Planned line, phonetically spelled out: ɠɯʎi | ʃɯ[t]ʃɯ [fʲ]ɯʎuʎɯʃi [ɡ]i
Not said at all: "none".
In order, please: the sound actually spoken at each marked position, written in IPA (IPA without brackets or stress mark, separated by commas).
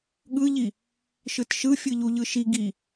t, fʲ, ɡ